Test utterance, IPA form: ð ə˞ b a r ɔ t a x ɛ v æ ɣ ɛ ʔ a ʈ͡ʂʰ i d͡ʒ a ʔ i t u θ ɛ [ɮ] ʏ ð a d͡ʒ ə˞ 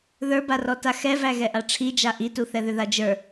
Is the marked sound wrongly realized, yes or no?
yes